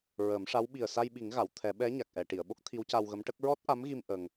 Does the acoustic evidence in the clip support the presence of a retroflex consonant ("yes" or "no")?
yes